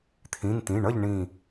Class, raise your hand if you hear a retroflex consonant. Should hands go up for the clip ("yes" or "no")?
yes